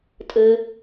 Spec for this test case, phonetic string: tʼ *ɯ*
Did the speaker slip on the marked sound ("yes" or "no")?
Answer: no